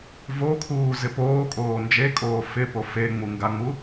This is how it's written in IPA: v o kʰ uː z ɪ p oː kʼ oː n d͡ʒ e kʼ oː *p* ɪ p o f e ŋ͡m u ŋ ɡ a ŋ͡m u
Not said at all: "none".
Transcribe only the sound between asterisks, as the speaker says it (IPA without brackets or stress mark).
f